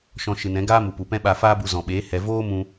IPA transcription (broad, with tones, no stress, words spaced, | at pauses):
ʃɔ̃˧ʃɨ˨nɛ̃˨˦ɡaː˦ mu˨pu˨pɛ̃˦ɓa˧ faː˦bu˧ zɔ̃˨ɓeː˨˦ hɛ˨ voː˦mũ˧